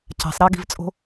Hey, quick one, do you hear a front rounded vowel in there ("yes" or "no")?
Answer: no